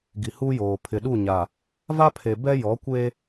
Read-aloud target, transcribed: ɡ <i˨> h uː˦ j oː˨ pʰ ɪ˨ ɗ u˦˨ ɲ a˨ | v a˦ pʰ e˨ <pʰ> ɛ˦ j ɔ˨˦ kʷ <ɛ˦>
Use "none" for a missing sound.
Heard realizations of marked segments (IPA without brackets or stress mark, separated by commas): i˨, b, e˦